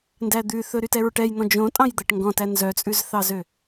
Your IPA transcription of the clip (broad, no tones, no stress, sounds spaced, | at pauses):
n d æ d̪ ʉ θ ɵ ɾ y t ɛ ɹ ʈ ɛ j n̪ ɔ̃ d͡ʒ õ tʼ ɑ̃ j d̪ æ ʈ ŋ ɡ ɔ̃ t æ n z œ t͡sʼ ʉ z θ ɑ z ø